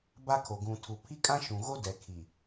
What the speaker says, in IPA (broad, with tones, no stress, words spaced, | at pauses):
ba˦kʰo˨ ɡũ˨tʰu˨ pʰi˦kʼã˦ʃũ˨ɣo˦ dɛ˨ kʰi˨